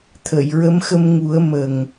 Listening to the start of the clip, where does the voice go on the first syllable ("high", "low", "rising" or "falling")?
low